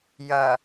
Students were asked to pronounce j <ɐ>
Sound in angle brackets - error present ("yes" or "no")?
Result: no